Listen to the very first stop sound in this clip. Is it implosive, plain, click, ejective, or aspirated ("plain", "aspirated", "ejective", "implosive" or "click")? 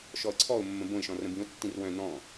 click